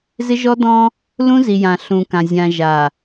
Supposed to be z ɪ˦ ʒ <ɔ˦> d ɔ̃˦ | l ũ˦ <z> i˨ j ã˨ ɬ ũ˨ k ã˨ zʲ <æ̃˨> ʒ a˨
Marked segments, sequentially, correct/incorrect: correct, correct, incorrect: ã˨

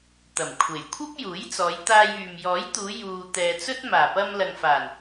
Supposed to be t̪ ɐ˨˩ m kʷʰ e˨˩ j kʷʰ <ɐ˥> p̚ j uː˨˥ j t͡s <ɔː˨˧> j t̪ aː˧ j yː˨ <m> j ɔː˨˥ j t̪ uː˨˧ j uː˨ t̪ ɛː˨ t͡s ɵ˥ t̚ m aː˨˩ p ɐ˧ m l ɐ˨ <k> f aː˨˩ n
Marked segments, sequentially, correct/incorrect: correct, correct, correct, incorrect: ŋ

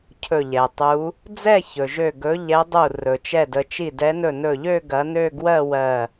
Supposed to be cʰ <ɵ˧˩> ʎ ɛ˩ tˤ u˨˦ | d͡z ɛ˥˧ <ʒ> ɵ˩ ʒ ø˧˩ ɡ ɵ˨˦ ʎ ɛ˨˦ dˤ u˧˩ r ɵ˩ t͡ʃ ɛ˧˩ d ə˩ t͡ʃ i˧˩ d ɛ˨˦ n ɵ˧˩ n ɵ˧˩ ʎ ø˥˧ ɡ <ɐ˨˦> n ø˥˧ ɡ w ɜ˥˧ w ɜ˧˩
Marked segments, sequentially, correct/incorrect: correct, incorrect: ç, correct

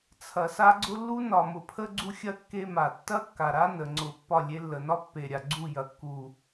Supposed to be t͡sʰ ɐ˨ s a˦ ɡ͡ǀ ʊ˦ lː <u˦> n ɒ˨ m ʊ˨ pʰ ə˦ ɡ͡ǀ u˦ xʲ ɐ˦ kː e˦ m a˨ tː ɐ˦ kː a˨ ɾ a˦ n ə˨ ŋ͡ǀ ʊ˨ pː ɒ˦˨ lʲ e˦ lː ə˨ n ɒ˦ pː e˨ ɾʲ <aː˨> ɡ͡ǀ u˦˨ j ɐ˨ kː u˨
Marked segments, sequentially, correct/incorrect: correct, incorrect: a˨

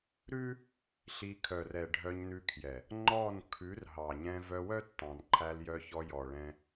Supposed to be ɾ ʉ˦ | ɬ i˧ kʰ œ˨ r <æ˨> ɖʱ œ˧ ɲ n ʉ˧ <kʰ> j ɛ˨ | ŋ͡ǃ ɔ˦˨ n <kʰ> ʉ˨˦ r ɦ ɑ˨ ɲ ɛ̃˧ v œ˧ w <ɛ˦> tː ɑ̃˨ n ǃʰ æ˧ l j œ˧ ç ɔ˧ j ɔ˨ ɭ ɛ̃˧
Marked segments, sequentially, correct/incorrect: incorrect: ɛ˨, correct, correct, incorrect: œ˦

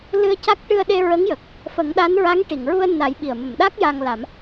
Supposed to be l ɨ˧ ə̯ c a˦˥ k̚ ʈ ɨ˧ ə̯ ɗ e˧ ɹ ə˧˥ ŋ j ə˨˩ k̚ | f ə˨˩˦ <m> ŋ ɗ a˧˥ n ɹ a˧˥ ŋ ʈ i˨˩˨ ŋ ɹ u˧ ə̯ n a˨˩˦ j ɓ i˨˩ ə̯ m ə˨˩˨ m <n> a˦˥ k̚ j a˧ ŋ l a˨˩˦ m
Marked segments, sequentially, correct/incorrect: incorrect: none, incorrect: ɗ

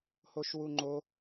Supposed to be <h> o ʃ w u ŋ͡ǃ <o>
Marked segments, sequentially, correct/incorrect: correct, correct

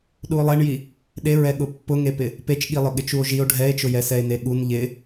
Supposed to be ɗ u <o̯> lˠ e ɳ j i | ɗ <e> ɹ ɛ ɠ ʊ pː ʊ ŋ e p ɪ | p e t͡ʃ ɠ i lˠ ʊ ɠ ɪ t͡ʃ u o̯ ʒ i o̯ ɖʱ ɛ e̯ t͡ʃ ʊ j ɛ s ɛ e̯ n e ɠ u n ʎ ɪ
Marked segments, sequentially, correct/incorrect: correct, correct

